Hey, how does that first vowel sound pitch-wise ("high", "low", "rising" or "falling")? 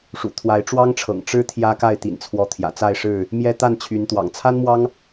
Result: low